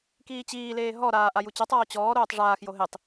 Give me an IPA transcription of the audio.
k iː t͡ɕ iː l eː ɦ ɔ ɾ aː ʔ a j u t͡ɕ ɔ tˤ ɔː t͡ɕ ɔː ɾ oː tˤ ʐ aː x j o ɦ e tˤ

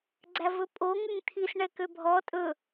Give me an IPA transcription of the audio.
ɡ͡ǀ æ v ɵ pʼ o ŋ ʉ ŋ t̪ʰ i s ɳ ɛ k ø bʱ ɔ tʼ ɵ

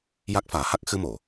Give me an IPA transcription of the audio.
j a˦˥ k̚ f aː˨˩˦ h a˦˥ k̚ x ɨ˧ m o˨˩˨

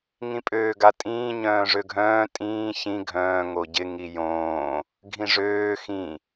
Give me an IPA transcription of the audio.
ŋ ĩ pʼ øː ɡ a tʼ ĩː ɲ œ̃ː ʐ ø ɡʱ œ̃ː tʼ ĩː ç ĩ ɡʱ œ̃ː ŋ o ɟ ɪ ŋ i j õː | ɡʱ ĩ ʐ øː x ĩ

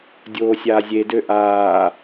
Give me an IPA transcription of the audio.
dʲ oː sʲ aː zʲ e d ø ʔ aː

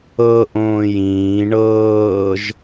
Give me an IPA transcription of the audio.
ɤ ʔ õː j ĩː ɳ ɤː ʒ

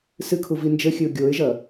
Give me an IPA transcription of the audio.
s ɨ kʰ u v i n d͡ʒ ɘ xʲ ɨ ʊ̯ ɡʲ o ɪ̯ ʒ ɐ

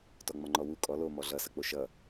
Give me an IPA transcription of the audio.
t ɔ ŋ͡m ɒ ŋ͡ǃ ɔ w u kʼ ɔ l o m ɔ ɮ ʌ s ʌ k͡p o ʃ ʌ

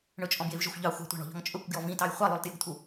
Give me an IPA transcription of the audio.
ɳ ɵ t͡ʃʼ ɔ̃ b j e v ʒ ɵ xʷ ʎ ɑ xʷ ɑ̤ tʷ ɑ̤ ɳ ɔ̤ ʎ ɔ̤ ŋ t͡ʃʼ ɵ kʷ ɡ j ɔ v ĩ t ɑ j χʷ ɑ lˠ ʉ lˠ t j ɵ ɡ t̪ʰ u

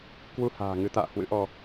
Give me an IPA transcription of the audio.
k w u˧ h a̤ː˨˩ ŋ ɨ˨˦ t̪ a̰ː˧˨ h w ɨ̰˧˥ ʔ ɔ˧

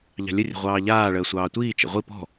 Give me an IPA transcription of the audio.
ʎ ɑ̤ lʲ ə rʲ ə̤ ʁʷ ɑː ʎ aː ɭ əː sʷ ɑː tʷ iː t͡ʃ ə̰ ʁʷ i p ɔ̤

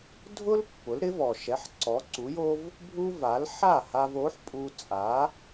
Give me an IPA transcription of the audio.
dʱ ʊ˥ l pː ʊ˩˥ l ɾ ɪ˩˥ v ɔ˩ ʃ ɛ˩˥ ħ ǀ ɔ˩˥ ǀ u˩˥ j o˥ v | bʱ u˥ v a˩˥ l ħ a˥˩ h a˧ v o˩˥ ħ pʼ u˧ t͡sʼ a˩˥

